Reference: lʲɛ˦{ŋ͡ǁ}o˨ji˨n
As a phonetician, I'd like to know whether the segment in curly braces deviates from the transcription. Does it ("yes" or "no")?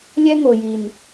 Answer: yes